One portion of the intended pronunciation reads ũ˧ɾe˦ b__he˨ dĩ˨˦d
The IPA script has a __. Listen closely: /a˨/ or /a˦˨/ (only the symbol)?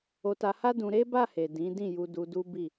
a˦˨